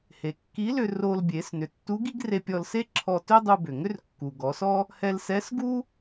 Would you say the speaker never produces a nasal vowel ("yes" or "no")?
yes